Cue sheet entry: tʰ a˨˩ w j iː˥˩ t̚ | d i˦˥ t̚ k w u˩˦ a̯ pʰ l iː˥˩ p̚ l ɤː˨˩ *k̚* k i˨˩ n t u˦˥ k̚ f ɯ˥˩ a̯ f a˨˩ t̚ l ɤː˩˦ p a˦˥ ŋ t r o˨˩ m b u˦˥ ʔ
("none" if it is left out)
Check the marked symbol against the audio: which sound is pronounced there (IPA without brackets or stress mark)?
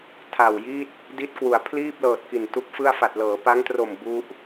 t̚